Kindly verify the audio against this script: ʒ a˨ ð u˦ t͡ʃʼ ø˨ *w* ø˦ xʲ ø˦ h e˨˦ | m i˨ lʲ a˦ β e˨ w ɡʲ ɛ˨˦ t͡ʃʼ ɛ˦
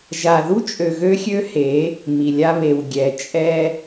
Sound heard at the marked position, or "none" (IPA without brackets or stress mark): ɣ